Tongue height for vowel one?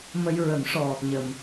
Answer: mid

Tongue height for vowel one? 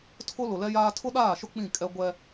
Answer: high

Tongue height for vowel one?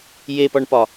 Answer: mid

